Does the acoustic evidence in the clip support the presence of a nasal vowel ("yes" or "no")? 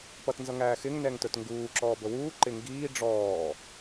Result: no